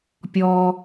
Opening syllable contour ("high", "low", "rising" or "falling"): high